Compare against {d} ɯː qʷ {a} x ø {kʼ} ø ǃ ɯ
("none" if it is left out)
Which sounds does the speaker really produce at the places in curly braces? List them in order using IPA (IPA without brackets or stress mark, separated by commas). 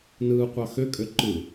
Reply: n, ɑ, kʼ